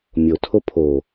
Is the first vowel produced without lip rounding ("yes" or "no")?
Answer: no